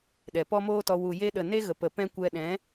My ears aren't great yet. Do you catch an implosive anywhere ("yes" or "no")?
yes